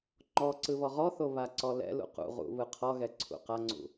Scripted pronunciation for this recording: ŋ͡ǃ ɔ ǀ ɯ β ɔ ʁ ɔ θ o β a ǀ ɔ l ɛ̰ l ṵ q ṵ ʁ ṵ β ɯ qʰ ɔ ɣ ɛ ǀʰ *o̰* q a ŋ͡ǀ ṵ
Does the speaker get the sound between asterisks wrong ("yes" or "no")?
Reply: yes